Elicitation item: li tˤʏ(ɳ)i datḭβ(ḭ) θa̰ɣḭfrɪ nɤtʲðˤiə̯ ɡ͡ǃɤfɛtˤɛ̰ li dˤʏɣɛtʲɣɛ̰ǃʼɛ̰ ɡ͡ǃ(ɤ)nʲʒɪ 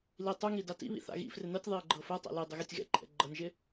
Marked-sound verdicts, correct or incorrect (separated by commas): incorrect, correct, correct